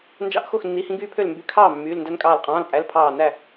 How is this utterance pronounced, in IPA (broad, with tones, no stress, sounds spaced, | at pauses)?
n d͡ʒ ɑ̰˦ ʔ x o˥˩ x nː i˩˧˩ h ĩ˦ ɡ yː˦ pʰ ø˥˩ l m b y˧˩ kʰ ɑː˥˩ mː yː˩˧˩ l n d æ˦ n kʼ ɑː˧˩ l qʼ ɑ̃ː˩˧˩ l pʼ æ˩˧˩ l pʰ ɑː˧˩ n æ˥˩